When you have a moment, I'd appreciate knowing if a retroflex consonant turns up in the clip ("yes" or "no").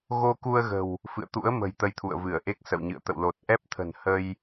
no